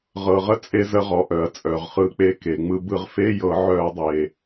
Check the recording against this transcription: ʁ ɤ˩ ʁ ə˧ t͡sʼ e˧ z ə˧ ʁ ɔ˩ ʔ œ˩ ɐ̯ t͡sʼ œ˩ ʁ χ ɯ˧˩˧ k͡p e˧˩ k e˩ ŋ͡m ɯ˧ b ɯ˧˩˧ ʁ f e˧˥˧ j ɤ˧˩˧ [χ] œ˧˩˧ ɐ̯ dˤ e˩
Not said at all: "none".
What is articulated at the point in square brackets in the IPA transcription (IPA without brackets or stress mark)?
ʕ